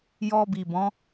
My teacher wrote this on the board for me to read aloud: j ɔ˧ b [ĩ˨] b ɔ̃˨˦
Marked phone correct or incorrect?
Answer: incorrect